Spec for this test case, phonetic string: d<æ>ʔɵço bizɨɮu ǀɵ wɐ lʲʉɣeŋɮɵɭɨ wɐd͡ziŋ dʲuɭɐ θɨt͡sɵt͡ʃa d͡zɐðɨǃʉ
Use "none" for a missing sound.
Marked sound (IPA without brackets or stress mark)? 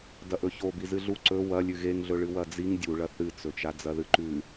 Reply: ɐ